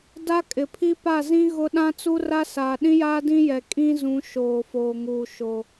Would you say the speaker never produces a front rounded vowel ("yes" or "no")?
yes